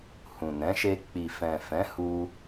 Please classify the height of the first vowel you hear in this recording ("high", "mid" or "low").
high